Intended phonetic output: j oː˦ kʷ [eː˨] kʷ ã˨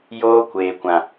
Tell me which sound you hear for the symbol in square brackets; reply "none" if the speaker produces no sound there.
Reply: eː˨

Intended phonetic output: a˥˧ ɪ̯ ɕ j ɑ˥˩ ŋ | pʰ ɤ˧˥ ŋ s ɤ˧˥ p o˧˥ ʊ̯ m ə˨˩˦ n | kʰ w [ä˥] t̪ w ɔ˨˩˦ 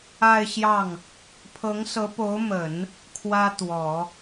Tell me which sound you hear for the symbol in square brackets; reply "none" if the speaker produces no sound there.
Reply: ä˥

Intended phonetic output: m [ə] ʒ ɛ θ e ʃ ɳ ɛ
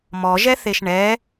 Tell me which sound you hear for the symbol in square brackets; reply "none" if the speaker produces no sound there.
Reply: ɔ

